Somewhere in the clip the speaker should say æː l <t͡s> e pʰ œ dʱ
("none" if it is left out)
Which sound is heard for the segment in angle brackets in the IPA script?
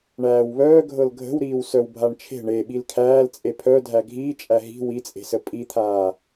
t͡sʼ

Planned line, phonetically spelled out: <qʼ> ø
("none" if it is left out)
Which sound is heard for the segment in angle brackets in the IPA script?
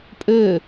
pʼ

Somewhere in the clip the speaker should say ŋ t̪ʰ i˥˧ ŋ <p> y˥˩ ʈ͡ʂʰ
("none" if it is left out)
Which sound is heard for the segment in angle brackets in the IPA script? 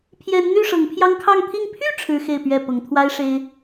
pʰ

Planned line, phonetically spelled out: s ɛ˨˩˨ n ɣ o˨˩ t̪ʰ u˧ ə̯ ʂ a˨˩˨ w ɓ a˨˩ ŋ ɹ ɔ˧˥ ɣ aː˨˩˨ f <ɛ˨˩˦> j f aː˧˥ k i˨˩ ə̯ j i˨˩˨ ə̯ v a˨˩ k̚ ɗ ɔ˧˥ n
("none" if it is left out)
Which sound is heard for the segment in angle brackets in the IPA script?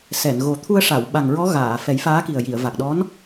ɛ˨˩˦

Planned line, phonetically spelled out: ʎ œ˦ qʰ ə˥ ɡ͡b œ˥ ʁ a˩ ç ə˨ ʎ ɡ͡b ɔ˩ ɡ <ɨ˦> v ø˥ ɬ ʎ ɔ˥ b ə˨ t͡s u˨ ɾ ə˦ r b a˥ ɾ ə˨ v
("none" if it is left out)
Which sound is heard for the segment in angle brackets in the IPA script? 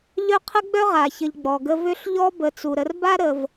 ə˦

